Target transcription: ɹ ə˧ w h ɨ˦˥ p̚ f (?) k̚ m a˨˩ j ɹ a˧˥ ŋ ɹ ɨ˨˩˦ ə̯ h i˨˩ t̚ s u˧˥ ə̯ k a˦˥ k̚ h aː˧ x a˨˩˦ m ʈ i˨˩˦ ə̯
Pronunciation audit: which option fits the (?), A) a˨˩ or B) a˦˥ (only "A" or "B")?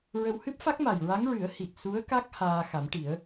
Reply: B